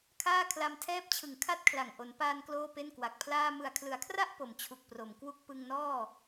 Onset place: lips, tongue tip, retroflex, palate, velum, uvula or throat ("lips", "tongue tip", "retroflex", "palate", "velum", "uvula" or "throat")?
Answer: velum